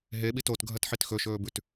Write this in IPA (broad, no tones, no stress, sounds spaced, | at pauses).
ɦ e ɓ i t o t ɡʱ ɐ t ħ i t x ɵ ʃ ɵː b ʉ t